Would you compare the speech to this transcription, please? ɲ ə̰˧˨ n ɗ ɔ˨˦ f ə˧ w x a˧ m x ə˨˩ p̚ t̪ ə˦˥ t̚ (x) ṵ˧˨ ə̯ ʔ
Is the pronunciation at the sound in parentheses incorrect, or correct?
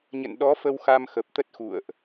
correct